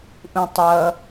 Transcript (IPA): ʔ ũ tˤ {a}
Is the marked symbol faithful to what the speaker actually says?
no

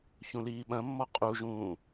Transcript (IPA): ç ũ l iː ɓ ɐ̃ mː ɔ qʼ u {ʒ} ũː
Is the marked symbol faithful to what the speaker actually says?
yes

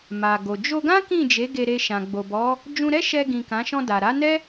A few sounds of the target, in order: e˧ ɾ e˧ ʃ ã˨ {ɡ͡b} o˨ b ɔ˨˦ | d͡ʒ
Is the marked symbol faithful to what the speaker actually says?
yes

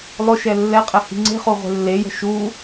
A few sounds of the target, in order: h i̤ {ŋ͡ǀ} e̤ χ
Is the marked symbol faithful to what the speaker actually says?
yes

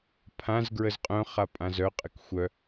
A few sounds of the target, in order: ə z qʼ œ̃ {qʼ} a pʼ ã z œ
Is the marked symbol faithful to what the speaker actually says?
no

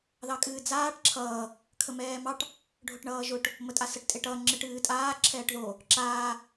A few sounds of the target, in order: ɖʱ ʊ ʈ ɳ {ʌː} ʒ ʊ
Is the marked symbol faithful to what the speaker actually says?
yes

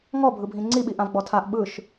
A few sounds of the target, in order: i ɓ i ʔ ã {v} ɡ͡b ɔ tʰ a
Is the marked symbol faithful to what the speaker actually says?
yes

